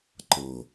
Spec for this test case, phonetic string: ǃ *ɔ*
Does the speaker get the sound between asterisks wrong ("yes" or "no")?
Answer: yes